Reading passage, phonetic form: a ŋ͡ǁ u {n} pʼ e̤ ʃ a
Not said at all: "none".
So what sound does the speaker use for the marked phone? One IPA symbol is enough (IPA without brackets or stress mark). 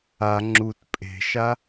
t